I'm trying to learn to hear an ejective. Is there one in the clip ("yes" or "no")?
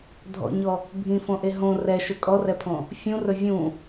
yes